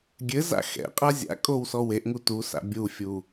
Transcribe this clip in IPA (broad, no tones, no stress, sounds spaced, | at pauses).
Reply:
ɡʲ ɘ z a̰ x ɛ̰ qʼ a zʲ a̰ kʼ o w s ɔ w e ʔ ŋ u t u s a̰ bʲ u fʲ u